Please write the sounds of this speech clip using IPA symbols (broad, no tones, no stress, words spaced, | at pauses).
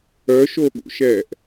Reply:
œʃoɠṵʃɛːʔ